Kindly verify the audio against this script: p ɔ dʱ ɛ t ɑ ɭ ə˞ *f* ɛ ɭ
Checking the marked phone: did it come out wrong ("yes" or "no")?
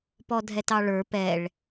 yes